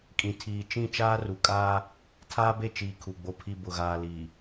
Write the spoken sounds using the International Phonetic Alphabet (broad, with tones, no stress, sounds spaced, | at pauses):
kʼ ĩ˨ tʰ iː˨ t͡ʃ ĩ˦˨ t͡ʃ aː˦ r u˨ kʼ aː˦ | tʰ aː˦ b e˦˨ t͡ʃ iː˨ kʰ u˨ ɡ͡b o˨ pʰ i˨ b ʊ˨ ɣ aː˨ l iː˨